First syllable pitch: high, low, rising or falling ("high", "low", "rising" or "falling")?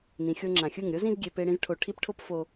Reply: low